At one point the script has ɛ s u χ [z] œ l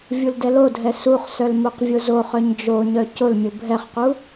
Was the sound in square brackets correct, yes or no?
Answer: no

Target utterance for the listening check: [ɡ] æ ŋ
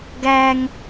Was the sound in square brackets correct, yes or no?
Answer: yes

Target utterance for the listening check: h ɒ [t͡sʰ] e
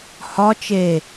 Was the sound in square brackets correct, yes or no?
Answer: no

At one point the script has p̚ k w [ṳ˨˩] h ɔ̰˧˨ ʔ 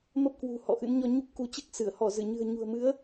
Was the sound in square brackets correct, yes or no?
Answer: yes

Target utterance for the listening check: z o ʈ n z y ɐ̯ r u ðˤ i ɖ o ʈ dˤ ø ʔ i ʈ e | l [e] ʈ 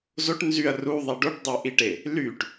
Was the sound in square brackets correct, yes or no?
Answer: no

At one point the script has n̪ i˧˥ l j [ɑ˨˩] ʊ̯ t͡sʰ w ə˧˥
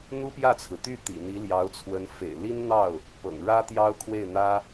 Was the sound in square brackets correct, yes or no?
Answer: no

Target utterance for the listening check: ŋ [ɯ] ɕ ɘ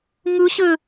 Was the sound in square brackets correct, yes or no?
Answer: yes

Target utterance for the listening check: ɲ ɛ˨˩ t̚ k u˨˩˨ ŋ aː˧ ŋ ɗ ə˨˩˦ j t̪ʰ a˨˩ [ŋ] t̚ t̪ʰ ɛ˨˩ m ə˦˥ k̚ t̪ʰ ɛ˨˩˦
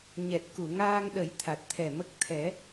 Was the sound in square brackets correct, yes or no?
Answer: no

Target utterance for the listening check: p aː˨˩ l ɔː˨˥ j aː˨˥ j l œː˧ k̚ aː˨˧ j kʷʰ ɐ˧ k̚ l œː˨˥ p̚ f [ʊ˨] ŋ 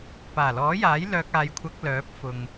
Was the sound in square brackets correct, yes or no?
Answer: yes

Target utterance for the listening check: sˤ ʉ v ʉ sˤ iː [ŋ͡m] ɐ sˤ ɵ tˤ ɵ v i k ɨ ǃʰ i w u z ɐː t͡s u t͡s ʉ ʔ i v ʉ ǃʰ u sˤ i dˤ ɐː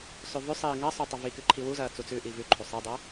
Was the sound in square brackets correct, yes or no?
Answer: no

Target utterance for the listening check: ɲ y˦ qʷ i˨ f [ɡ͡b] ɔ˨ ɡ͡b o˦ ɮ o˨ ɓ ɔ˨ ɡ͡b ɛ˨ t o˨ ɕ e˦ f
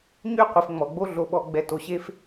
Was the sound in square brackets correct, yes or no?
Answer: no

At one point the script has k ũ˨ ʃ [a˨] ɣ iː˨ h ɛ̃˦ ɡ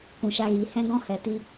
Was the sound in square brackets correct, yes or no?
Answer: no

